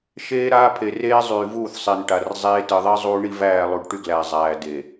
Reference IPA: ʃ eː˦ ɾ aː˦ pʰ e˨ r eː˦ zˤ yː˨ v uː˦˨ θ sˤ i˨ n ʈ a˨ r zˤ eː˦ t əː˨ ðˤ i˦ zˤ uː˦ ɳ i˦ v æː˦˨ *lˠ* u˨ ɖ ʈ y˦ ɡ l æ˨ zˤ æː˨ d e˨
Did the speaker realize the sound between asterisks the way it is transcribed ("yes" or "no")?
yes